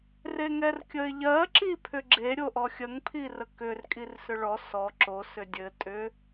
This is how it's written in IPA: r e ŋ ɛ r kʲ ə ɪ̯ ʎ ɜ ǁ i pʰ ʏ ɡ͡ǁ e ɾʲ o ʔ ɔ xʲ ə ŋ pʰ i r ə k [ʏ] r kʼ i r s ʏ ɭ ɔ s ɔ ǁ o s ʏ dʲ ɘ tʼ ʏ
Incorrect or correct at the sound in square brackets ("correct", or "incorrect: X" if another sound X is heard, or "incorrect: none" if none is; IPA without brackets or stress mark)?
correct